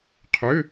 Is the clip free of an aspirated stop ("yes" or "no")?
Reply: no